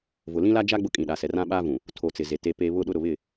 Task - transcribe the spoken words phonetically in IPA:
v ʊ˨ l ĩ˦ l a˦ d͡ʒ a˦ ɡ͡b ʊ˦ kʼ ĩ˨ ɗ a˨ s ɛ˨ r ã˦ ɓ aː˦ v ũ˨ | tʰ o˨ t͡s ɪ˨ z e˨ t e˨ p e˨ β ʊ˦ ɗ ʊ˦ ɾ ʊ˨ β ɪ˦˨

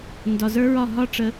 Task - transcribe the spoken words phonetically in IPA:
n d ɒ˨ z ə˞˦ ɹ ɒ˦˨ ɦ ɒ˦ ʈ͡ʂ ə˨˦

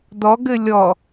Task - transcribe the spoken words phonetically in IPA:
d ɔ ɡ ɘ lʲ ɔ

